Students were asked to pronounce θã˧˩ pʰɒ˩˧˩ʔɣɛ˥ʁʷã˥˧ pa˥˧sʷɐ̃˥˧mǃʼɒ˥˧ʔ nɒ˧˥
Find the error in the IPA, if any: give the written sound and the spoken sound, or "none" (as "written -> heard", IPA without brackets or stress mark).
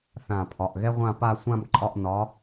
ɐ̃˥˧ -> ã˥˧